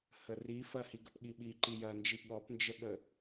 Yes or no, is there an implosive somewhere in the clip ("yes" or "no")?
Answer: yes